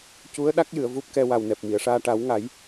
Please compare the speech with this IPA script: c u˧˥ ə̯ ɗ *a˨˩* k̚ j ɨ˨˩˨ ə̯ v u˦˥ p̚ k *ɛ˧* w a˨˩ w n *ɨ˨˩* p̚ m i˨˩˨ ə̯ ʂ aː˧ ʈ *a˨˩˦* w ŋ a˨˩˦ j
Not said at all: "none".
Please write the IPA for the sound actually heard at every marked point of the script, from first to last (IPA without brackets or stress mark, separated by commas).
a˦˥, ɛ˧, ɛ˨˩, a˨˩˦